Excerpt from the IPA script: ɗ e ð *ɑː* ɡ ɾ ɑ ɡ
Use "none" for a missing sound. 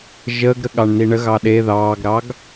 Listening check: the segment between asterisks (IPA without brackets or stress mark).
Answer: ɑː